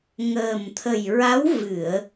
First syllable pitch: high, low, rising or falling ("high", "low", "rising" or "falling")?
low